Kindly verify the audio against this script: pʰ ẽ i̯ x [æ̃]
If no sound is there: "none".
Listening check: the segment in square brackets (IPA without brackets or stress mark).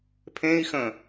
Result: ə̃